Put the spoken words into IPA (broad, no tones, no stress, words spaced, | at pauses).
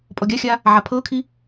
pʼɔɡʲaxʲaː | ʕapʰɤkʰi